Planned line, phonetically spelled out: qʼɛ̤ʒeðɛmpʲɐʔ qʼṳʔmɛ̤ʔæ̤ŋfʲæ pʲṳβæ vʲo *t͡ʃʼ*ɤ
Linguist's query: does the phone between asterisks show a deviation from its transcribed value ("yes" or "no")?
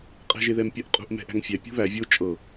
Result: no